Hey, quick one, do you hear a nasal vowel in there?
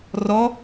no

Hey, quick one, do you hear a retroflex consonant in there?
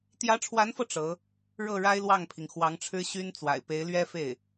yes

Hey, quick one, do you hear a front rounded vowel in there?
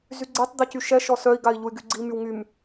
yes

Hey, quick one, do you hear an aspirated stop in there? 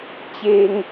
no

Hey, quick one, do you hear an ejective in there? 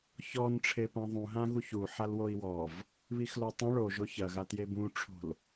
no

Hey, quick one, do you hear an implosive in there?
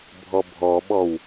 yes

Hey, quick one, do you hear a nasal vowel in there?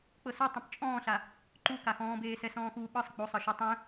yes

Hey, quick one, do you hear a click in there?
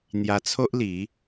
no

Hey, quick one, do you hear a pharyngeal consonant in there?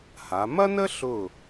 no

